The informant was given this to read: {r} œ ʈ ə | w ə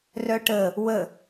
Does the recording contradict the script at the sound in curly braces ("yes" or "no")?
no